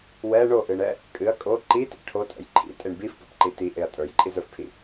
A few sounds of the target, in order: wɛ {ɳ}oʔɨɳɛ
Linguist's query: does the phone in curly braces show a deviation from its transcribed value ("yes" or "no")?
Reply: no